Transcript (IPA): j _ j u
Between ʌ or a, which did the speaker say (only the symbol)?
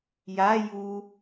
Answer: a